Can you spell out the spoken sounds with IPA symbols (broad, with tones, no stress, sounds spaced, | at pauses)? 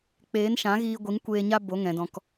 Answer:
k͡p eː˨˦ n ʃ ã˨˦ ɣ iː˧ ɡʷ i˨˦ ŋ kʷ eː˧ ɲ a˦ b o˨˦ ŋ ɛ̃˨ d ɔ̃˨ k